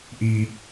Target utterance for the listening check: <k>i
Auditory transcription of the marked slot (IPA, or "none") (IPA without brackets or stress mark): ʔ